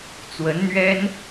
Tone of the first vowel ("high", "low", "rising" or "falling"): rising